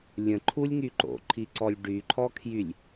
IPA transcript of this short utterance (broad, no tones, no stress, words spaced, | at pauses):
lʲə̃ǃʰulʲŋy ǃo̰ǃʰiǀɔlʲ ɖyǃʰɔkʰjylʲ